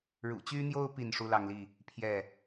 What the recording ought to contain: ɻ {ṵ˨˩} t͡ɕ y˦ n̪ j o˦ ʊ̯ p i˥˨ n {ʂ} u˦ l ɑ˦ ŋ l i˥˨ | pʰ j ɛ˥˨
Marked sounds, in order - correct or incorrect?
correct, correct

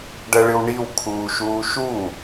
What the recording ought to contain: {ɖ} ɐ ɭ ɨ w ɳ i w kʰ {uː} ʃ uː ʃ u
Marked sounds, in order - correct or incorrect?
correct, correct

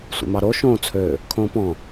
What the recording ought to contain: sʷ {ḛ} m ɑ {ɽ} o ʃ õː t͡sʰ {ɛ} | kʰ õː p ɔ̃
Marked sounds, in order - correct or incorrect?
correct, incorrect, incorrect

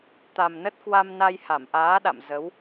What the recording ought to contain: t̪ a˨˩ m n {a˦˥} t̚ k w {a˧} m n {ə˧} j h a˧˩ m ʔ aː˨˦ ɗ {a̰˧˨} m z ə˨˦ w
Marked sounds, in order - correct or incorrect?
incorrect, correct, incorrect, correct

